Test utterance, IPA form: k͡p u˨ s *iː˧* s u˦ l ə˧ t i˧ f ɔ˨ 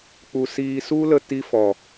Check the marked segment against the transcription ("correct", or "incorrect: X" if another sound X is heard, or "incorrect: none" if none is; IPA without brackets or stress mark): correct